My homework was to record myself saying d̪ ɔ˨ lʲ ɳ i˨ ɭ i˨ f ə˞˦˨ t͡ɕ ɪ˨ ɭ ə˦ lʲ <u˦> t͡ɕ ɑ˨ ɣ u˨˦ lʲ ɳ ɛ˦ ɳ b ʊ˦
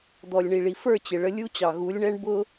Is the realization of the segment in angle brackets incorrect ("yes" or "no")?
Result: no